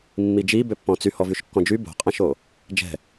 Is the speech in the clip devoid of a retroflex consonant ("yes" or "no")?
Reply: yes